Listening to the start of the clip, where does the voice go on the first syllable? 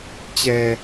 low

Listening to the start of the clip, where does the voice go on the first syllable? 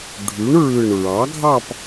rising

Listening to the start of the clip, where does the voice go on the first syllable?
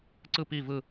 falling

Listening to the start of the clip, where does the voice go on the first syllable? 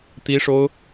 high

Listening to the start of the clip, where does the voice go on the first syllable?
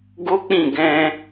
high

